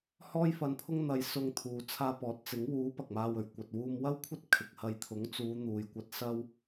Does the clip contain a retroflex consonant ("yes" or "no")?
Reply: no